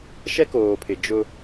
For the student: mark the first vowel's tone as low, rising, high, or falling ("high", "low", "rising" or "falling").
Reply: high